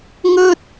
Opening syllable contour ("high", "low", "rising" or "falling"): high